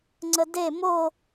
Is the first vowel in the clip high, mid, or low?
mid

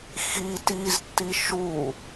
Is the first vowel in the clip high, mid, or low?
high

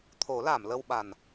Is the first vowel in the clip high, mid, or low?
mid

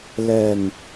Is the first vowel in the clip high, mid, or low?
mid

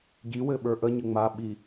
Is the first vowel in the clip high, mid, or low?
high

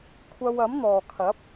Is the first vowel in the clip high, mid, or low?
low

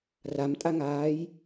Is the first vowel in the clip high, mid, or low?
low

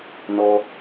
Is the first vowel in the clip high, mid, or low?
mid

